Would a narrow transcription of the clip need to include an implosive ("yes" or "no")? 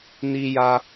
no